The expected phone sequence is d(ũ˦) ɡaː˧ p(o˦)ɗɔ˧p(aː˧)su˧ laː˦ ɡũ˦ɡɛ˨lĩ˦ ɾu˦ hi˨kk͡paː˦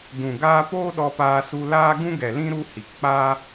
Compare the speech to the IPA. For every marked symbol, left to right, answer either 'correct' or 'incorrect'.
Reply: incorrect: ũ˨, incorrect: oː˦, correct

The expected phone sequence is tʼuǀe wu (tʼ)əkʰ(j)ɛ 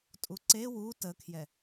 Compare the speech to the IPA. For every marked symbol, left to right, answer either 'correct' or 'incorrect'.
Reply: incorrect: t, correct

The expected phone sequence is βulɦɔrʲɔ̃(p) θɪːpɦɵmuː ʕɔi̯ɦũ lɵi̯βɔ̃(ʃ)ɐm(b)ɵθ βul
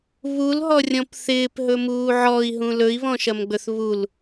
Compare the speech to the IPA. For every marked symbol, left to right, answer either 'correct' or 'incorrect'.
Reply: correct, correct, incorrect: ɡ͡b

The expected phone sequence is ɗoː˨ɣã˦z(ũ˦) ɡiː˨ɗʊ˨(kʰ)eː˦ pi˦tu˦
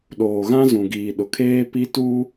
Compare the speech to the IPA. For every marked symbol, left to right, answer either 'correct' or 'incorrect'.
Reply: incorrect: ũ˨, correct

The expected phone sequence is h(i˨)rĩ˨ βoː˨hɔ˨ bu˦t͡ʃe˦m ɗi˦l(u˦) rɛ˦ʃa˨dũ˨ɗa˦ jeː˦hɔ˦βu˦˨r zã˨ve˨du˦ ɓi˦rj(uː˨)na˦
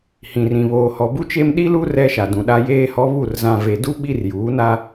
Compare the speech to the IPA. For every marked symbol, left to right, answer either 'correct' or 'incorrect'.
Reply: incorrect: ĩ˨, correct, incorrect: uː˨˦

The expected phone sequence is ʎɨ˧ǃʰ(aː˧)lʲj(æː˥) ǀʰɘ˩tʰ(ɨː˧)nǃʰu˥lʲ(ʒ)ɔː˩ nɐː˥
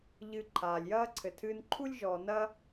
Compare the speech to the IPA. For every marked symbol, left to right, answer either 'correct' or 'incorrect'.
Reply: incorrect: aː˩, incorrect: ɐː˥, correct, correct

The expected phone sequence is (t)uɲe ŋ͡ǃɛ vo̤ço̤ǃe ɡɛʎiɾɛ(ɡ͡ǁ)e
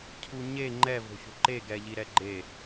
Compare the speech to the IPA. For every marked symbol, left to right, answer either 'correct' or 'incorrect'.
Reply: incorrect: cʰ, incorrect: ɡ͡ǃ

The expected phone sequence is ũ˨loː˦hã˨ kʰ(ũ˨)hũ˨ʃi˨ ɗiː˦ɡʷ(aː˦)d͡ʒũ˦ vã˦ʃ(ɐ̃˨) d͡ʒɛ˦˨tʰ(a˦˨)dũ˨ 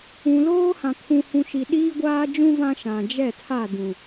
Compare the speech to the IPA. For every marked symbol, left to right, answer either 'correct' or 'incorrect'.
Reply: correct, correct, incorrect: ã˨, correct

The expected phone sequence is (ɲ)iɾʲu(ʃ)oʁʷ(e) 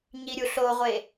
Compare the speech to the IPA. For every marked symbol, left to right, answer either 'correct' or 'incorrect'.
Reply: correct, incorrect: ɬ, correct

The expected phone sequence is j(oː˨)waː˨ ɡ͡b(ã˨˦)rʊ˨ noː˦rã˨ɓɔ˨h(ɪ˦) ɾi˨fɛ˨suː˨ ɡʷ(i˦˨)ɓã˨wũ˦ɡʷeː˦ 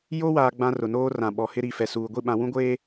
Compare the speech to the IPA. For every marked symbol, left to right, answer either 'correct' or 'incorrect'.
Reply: incorrect: oː˦, incorrect: ã˦, correct, correct

